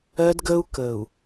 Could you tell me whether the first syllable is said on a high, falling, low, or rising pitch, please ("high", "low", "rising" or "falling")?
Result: high